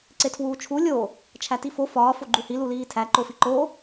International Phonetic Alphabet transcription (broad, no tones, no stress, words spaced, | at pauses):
ǀetʰwuːt͡ʃʰu lʲo | t͡ʃʰætifo fɒː foɡ͡ǃuhi luliːtʰæ ǃofiǃo